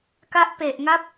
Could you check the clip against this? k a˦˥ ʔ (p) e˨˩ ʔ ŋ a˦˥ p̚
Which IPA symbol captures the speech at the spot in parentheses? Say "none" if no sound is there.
p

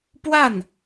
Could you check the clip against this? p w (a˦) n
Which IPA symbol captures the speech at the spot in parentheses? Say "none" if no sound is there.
a˥˩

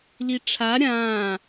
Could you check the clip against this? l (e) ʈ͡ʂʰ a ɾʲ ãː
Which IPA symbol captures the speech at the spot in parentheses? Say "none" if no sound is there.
i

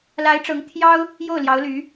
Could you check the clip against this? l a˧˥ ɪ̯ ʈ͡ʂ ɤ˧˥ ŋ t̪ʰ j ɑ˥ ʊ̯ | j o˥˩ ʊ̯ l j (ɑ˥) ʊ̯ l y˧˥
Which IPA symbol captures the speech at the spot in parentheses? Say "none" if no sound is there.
ɑ˧˥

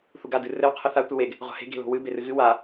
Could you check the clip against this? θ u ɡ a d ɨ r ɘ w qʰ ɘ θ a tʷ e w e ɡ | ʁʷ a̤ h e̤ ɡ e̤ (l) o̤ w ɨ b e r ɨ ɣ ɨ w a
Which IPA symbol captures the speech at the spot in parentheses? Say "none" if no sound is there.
l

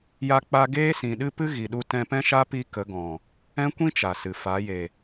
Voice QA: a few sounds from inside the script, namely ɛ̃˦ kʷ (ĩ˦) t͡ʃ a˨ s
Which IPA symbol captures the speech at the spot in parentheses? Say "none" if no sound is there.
ĩ˦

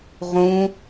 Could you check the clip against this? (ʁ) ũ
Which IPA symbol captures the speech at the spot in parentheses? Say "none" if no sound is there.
ʁ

